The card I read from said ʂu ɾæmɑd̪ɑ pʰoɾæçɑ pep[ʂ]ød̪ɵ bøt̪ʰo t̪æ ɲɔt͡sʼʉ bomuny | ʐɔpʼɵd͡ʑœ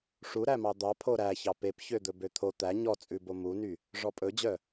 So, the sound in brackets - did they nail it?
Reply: no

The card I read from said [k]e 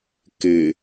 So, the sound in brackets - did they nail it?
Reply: yes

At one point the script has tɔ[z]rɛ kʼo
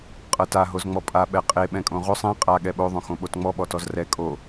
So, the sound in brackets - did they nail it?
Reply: yes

